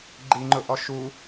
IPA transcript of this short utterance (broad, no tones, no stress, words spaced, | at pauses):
ɡ͡ǃiŋ͡ǃʊʔɔ ʃu